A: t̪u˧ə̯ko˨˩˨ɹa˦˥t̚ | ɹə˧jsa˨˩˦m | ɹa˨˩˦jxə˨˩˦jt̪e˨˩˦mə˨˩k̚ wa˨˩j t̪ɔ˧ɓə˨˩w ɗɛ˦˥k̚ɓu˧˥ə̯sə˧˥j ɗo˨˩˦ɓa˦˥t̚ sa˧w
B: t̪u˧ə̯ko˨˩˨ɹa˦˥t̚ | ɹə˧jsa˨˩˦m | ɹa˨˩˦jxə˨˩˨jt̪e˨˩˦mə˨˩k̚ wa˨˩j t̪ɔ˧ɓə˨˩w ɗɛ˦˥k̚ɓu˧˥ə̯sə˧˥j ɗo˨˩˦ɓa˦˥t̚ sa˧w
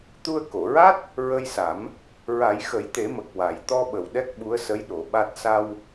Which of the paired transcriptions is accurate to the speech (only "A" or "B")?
A